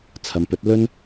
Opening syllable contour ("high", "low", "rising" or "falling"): low